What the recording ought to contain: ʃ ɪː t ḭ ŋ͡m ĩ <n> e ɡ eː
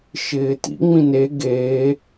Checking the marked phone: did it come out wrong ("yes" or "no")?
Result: no